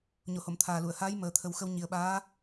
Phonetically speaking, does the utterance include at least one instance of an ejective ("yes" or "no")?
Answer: no